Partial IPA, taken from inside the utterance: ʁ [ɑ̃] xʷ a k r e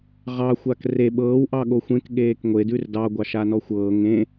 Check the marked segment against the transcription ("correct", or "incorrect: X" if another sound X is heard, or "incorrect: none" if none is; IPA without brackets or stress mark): incorrect: ɑ